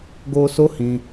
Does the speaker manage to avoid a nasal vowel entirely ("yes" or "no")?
no